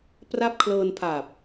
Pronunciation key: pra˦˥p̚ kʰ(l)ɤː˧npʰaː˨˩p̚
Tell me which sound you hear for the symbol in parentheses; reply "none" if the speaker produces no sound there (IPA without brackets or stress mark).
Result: l